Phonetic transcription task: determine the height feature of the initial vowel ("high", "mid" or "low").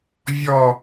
mid